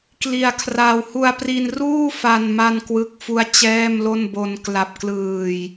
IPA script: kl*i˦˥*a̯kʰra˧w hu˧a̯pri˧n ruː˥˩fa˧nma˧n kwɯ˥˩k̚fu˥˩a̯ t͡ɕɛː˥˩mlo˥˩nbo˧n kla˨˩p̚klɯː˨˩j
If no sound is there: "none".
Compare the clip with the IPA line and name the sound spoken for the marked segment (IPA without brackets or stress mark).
i˧